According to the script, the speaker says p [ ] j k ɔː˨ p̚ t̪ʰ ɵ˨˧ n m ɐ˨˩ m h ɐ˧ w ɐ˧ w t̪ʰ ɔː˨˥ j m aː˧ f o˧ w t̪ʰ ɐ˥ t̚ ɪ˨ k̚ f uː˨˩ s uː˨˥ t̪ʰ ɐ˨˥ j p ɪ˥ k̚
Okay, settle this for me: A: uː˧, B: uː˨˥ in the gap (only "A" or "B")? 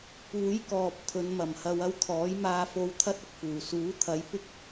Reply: B